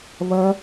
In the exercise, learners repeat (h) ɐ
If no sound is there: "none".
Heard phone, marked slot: β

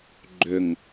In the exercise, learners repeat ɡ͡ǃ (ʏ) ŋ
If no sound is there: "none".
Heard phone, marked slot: ʏ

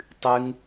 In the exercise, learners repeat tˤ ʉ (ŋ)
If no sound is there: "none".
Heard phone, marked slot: ŋ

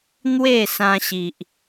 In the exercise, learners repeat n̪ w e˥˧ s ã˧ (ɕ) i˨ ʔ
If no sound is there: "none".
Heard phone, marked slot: ɕ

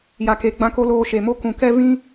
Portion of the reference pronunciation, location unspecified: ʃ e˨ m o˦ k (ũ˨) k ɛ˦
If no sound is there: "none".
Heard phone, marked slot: ũ˨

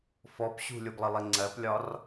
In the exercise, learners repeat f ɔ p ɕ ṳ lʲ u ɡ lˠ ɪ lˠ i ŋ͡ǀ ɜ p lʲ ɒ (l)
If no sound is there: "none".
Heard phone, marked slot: r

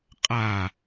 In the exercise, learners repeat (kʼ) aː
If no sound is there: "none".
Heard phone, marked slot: qʼ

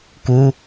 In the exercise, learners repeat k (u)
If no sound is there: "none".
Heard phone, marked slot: u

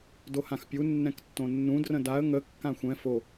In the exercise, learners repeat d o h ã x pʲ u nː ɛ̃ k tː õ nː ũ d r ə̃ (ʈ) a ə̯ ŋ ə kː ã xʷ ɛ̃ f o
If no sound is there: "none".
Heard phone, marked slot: d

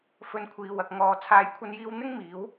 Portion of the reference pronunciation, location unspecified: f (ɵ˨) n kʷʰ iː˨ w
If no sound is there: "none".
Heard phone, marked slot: ɵ˧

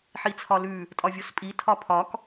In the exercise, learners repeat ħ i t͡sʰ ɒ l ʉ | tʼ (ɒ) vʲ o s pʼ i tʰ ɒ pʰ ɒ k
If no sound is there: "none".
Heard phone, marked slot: ɒ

